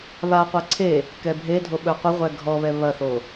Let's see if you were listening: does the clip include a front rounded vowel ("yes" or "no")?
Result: no